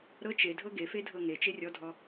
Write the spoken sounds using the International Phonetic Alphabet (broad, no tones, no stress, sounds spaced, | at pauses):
ɾ ɤ t͡ʃ e dʱ ɤ ɡ e f e dʱ ɤ ŋ e t͡ʃ e rʲ ɔ dʱ ɔ